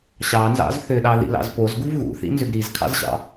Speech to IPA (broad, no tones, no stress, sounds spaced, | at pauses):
ɕ ɑ n z ɑ̰ z θ ʏ ɗ ɑ ð ḭ l ɑ̰ z p o z ɡ u v ɣ ṵ θ ḭ n z ʏ ɡ ɾ i z kʰ ɑ̰ z ɕ ɑ̰